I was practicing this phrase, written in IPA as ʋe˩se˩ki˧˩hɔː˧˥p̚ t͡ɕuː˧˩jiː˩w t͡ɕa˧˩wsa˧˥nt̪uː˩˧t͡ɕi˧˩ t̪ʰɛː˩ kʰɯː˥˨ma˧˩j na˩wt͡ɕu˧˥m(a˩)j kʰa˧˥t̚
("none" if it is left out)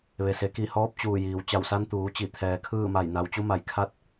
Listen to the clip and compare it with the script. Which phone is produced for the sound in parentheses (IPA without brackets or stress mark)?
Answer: a˧˩